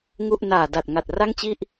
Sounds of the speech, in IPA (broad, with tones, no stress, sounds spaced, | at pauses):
ŋ u˥˩ ʔ n aː˨˩ d a˨˩ t̚ ŋ a˨˩ t̚ r a˥˩ ŋ t͡ɕ i˥˩ ʔ